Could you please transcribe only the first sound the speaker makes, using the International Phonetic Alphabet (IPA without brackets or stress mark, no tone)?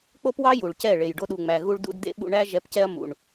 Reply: k͡p